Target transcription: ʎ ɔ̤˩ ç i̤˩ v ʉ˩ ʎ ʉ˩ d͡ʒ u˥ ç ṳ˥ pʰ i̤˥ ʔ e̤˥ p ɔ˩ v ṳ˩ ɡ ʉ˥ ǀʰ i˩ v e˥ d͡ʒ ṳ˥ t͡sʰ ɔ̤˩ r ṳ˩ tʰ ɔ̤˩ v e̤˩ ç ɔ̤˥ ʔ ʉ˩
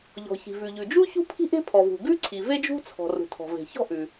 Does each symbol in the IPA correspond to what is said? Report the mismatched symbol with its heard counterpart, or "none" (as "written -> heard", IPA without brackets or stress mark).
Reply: p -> pʰ